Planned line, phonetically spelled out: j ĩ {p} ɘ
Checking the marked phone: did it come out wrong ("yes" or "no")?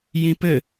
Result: no